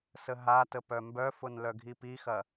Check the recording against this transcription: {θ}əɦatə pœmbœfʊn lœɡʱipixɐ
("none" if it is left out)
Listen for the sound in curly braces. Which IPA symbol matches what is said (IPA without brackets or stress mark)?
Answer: s